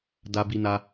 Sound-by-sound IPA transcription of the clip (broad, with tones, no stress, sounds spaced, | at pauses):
d a˧ b i˧ n a˧